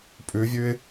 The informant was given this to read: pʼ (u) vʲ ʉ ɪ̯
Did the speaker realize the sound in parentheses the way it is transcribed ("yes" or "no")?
no